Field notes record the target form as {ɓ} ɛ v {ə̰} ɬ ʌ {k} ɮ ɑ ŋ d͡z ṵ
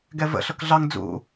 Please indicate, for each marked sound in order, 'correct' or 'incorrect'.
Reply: incorrect: ɡ, correct, correct

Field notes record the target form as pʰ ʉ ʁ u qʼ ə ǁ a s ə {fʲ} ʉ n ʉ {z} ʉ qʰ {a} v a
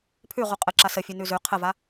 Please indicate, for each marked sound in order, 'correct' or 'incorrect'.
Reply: correct, correct, incorrect: ə

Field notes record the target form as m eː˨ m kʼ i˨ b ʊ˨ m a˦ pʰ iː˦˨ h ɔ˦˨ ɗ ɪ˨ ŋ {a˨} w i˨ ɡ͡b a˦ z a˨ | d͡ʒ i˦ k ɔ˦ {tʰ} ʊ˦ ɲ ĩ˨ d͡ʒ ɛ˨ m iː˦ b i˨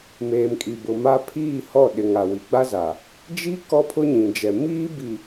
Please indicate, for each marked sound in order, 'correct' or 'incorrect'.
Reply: correct, incorrect: pʰ

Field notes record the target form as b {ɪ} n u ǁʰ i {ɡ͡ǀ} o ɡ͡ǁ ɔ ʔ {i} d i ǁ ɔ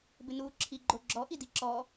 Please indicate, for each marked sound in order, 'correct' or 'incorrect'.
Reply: correct, incorrect: ɡ͡ǃ, correct

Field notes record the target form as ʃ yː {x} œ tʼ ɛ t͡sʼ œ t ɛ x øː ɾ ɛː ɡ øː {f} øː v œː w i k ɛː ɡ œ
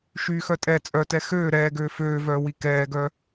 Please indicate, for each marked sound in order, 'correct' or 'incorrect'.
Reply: correct, correct

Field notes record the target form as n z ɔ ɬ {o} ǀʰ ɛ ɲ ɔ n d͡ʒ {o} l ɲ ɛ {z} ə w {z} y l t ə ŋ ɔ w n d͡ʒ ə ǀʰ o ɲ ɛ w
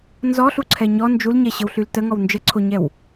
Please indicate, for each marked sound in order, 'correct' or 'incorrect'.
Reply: incorrect: u, incorrect: u, incorrect: ɕ, incorrect: ɬ

